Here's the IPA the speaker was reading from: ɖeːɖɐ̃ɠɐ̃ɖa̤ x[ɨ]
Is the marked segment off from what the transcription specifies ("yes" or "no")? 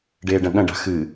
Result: no